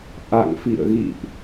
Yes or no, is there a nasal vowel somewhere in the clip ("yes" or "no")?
no